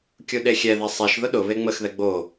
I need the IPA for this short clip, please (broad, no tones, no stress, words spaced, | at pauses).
kʲuɗexʲɛðɛ sˤeʃ ðʊɗʊβe ŋ͡məxðɛ ɡ͡bo